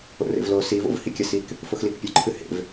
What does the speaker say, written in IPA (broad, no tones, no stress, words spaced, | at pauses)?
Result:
o̰rḛvlo sivo̰v hikʲɐsik | foxlikpʲɵǃʰɨ hḛv